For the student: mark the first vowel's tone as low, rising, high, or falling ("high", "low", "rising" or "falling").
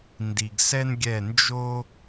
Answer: low